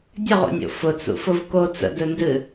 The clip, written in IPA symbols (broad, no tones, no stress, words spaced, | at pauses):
dʲəʁo̰nʲo̰ fʊt͡sṵfʊv ko t͡sə̰dɵndɨ